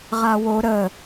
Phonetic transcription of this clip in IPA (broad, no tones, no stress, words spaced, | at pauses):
ʁawo ɾə